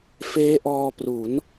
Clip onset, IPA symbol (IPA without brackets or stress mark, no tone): f